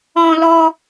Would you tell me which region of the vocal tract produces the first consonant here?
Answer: tongue tip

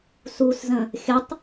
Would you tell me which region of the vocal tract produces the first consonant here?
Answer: tongue tip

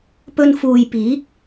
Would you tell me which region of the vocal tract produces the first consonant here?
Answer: lips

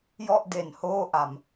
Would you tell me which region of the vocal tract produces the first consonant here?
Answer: palate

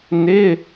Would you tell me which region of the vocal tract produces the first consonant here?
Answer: tongue tip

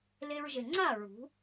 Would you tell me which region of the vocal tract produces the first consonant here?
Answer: tongue tip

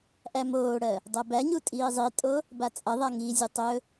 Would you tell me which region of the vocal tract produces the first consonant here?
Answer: throat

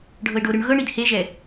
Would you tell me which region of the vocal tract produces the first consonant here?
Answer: retroflex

